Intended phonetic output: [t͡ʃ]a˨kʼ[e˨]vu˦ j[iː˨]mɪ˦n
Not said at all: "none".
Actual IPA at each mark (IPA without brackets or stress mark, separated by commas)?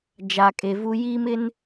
d͡ʒ, e˨, iː˦